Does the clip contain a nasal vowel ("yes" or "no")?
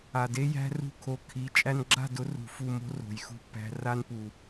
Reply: no